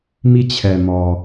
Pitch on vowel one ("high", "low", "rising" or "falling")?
falling